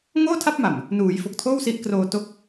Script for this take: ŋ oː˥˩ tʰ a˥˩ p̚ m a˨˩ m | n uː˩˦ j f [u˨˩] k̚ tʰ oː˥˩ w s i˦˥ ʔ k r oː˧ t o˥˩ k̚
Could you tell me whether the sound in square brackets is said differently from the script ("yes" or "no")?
yes